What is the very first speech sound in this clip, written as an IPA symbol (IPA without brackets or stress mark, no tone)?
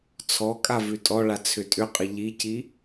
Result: t͡sʰ